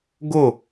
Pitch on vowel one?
falling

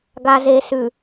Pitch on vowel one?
low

